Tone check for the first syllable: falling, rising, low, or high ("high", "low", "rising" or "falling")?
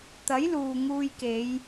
rising